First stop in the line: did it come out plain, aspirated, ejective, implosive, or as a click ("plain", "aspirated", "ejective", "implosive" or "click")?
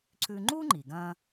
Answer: click